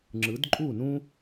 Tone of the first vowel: rising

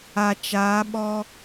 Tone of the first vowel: low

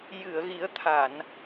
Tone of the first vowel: low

